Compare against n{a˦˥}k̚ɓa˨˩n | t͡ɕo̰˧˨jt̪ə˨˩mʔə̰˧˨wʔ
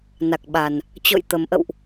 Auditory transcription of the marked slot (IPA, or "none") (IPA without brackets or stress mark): a˨˩